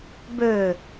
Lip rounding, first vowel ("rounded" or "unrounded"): rounded